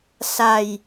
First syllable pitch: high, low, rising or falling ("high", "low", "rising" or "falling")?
low